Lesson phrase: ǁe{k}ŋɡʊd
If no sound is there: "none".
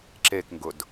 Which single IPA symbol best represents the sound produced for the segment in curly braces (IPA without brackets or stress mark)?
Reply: k